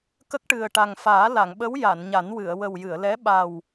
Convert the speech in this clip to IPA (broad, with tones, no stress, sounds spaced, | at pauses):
k ə˦˥ k̚ ʈ ɨ˨˩ ə̯ ʈ a˨˩ ŋ f aː˨˩˦ l a˨˩˨ ŋ ɓ ə˧˥ w j a˨˩˨ n ɲ a˨˩˦ n w ɨ˨˩˨ ə̯ w ə˨˩ w j ɨ˨˩˨ ə̯ l ɛ˧˥ ɓ a˨˩ w